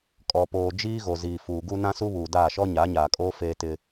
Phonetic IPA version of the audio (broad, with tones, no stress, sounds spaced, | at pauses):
kʼ ɔ˨ p oː˨ d͡ʒ iː˦ ɣ o˨ z iː˨ f uː˨ ɡ u˦ n ã˦ s u˦ β uː˨ d aː˦˨ ʃ ɔ˦ ɲ a˨˦ ɲ aː˨ kʼ oː˦ f eː˦ t ɪ˦